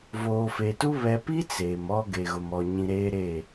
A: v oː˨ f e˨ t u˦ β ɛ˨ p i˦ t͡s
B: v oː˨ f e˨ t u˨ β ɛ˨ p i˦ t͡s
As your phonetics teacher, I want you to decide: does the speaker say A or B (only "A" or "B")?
A